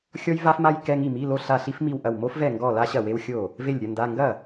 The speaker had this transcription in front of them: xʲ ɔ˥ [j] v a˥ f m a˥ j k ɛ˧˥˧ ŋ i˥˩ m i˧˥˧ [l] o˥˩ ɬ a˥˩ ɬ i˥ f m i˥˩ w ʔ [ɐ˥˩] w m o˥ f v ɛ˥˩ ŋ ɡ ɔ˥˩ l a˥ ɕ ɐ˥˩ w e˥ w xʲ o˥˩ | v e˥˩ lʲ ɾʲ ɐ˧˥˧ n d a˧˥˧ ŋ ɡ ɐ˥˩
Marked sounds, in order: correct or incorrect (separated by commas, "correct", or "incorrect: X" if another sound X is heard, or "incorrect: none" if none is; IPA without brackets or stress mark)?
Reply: correct, correct, correct